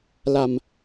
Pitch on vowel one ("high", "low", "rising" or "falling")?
low